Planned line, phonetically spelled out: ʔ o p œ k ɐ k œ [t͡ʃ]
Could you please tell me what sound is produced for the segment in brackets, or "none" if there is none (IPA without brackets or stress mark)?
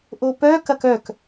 k